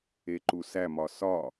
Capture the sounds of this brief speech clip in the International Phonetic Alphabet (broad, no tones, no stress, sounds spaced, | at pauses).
e ǃ u s æ m ɒ s ɒ